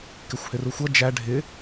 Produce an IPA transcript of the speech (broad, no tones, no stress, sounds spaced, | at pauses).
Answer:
k ɪ xʷ h ɪ r u xʷ ʌ d͡ʒ æ ɖʱ ɪ